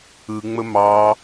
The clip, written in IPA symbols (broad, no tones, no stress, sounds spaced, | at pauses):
ɯ ŋ͡m ə m ɑ